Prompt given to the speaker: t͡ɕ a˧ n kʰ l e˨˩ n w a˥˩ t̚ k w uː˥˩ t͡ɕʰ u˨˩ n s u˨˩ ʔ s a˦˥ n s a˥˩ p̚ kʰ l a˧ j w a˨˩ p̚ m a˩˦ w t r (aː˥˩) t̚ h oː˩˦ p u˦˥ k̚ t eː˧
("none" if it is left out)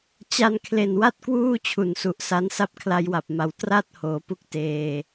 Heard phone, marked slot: a˥˩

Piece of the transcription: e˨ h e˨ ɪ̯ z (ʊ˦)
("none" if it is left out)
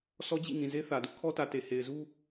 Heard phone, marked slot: u˦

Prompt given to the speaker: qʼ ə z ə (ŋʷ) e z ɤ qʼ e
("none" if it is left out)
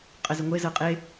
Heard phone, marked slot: ŋʷ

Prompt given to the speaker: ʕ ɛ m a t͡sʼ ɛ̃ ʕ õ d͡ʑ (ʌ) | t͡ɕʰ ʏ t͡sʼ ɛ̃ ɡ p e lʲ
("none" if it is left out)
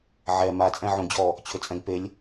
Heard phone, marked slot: ɔ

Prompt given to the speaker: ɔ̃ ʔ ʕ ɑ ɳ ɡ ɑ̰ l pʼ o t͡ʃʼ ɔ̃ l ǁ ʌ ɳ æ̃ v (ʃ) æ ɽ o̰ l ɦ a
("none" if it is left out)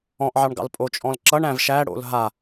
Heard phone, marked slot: ʃ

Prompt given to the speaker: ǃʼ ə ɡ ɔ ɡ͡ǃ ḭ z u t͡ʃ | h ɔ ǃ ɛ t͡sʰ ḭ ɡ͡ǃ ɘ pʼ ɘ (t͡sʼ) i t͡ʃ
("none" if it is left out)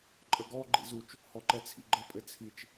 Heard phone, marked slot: t͡sʰ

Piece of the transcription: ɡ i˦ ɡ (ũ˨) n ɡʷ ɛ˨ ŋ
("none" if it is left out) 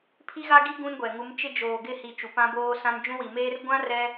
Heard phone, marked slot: ũ˦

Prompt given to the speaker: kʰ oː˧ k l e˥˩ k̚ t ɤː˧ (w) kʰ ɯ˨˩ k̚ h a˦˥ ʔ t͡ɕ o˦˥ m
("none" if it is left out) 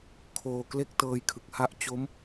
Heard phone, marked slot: j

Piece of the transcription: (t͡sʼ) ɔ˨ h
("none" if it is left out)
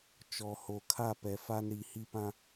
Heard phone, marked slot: t͡ʃ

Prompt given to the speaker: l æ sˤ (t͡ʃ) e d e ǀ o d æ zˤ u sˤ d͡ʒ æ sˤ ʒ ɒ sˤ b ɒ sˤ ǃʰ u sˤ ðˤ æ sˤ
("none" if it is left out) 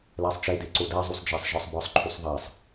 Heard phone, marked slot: t͡ʃ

